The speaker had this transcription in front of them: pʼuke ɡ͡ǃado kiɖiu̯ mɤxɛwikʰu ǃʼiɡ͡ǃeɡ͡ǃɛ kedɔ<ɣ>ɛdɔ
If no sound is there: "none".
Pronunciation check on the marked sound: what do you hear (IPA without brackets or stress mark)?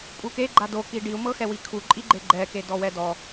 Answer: w